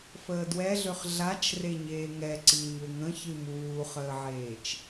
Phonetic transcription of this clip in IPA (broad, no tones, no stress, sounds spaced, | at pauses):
f əː d w ɛ ɮ ø χ ɮ a t͡ʃ r e ɲ eː ŋ ɛ ǀ i ɲ ø ŋ ə̃ ç ɨ m uː χ əː ʕ eː t͡ʃ